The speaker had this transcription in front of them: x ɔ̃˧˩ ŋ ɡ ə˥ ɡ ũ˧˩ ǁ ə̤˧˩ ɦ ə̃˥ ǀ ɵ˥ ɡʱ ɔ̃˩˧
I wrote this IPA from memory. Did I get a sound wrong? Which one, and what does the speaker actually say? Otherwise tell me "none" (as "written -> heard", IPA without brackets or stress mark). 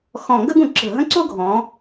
ɵ˥ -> o˥